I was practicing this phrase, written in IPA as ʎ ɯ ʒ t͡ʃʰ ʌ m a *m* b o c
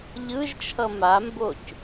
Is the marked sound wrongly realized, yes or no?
no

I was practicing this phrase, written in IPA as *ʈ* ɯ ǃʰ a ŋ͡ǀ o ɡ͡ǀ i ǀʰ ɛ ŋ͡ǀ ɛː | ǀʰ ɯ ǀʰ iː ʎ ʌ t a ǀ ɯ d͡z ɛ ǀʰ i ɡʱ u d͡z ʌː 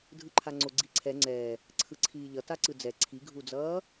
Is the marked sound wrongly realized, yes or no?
yes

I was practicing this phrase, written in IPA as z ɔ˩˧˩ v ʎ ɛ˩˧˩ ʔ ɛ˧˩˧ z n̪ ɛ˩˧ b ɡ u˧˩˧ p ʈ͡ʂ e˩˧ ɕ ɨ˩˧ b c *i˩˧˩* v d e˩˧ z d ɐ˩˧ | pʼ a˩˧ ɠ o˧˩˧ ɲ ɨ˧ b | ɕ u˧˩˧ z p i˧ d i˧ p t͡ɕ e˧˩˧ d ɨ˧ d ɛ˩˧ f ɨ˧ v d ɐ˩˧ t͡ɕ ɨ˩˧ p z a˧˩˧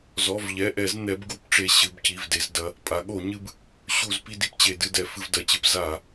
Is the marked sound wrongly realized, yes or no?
no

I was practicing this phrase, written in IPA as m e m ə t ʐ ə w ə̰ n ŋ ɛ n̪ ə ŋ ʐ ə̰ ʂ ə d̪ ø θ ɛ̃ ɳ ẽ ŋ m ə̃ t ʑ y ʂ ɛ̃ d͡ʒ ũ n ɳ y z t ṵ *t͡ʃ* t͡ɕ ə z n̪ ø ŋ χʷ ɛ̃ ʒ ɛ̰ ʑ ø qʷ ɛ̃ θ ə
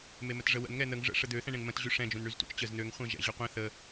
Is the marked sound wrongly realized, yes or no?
no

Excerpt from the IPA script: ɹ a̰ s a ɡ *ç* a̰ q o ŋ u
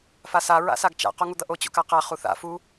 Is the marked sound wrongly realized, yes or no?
yes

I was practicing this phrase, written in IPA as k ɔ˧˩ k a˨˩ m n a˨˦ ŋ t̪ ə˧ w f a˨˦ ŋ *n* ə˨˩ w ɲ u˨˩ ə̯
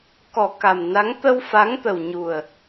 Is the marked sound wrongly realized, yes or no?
yes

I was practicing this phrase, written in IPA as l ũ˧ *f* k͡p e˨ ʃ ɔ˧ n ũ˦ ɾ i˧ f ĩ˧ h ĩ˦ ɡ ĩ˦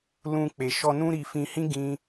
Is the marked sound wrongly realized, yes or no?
yes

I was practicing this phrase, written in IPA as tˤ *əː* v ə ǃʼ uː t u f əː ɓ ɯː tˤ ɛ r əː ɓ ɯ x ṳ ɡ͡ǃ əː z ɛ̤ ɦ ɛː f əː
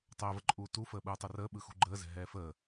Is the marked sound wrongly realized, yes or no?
no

